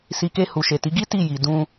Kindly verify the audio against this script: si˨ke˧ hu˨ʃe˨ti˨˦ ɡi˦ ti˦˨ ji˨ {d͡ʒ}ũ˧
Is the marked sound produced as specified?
no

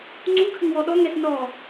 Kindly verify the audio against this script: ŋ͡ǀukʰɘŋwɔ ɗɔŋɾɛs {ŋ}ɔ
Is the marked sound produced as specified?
no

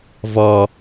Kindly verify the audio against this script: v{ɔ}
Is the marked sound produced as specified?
yes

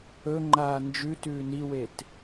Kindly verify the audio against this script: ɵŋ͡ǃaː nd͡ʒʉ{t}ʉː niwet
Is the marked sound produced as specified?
yes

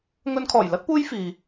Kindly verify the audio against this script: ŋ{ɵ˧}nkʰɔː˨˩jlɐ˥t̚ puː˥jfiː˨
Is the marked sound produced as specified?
yes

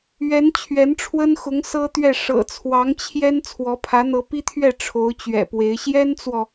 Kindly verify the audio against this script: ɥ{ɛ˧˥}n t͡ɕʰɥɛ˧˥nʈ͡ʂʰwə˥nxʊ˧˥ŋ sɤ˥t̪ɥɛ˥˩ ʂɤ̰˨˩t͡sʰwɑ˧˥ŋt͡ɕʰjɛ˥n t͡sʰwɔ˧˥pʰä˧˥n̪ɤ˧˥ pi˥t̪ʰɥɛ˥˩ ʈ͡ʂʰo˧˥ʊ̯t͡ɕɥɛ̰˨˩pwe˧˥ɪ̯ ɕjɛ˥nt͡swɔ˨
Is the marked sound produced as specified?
yes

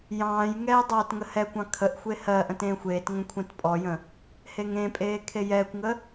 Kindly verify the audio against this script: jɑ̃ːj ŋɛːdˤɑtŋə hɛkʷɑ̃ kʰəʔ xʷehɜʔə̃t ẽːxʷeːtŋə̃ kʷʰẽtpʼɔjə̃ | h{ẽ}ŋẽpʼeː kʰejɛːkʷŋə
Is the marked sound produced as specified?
no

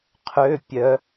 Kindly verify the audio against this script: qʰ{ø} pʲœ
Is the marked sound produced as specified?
yes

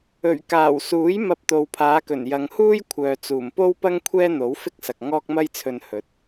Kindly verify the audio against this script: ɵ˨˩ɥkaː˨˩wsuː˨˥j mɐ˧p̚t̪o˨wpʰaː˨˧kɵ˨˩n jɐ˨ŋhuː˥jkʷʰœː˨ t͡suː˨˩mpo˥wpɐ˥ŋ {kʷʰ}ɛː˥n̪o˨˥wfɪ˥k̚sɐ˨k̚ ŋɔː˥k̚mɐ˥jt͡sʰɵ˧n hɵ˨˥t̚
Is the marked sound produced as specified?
yes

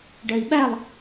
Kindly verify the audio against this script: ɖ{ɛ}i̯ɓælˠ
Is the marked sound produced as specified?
yes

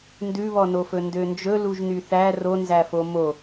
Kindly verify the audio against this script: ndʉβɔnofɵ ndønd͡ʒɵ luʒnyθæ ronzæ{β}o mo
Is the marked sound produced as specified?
no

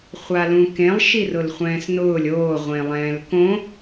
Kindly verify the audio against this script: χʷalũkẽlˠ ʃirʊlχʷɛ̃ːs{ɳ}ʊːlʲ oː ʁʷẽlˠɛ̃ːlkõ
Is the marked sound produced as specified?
no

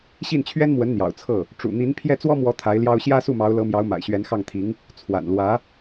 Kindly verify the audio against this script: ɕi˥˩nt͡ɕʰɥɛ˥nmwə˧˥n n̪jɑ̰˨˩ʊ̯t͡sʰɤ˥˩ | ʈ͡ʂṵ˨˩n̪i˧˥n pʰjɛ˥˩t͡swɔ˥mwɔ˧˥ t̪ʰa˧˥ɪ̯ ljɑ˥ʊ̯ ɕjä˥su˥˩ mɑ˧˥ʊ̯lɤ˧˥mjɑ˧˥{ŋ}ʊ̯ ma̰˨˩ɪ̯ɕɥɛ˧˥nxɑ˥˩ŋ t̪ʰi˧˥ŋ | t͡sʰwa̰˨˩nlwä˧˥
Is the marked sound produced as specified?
no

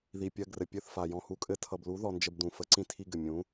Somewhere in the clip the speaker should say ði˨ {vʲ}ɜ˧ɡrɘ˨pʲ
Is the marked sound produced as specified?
no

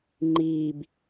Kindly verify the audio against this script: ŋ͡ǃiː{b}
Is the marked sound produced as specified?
yes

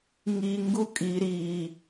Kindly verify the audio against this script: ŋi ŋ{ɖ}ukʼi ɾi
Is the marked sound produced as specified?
no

